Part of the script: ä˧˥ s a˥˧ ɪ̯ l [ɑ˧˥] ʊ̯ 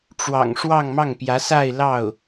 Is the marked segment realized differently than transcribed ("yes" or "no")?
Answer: yes